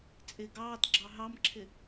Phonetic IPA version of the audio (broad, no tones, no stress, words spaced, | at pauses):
t͡sʼɪ ɡɑːtɡ͡ǁɑ ɦɑmǁʰɪ